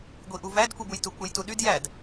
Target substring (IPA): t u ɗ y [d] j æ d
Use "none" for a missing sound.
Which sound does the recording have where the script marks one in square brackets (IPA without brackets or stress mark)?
d